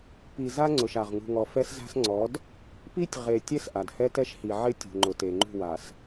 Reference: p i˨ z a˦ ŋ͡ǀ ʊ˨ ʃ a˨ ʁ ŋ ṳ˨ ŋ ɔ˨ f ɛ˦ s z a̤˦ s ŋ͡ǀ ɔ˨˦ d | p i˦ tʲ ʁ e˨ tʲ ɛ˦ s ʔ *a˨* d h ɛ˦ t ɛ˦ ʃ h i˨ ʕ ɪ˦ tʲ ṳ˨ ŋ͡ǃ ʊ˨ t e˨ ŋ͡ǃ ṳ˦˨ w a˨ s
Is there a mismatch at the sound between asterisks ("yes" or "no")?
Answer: no